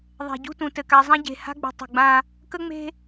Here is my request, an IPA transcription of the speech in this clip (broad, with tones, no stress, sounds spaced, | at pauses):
ðˤ ɛ̤˨ ɟ ṳ˦ t ũ˨ t ɘ˨ k a˨ zˤ ã˦ ɟ e̤˨ h a̤˦ ɡ͡b ṳ˨ tˤ ṳ˨ ɡ͡b ã˦ | k ə˦ ŋ͡m e̤˦